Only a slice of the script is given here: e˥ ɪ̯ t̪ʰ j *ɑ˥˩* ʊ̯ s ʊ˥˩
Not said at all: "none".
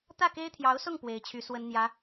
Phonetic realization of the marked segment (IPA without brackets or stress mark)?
ɑ˧˥